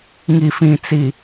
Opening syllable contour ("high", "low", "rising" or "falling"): low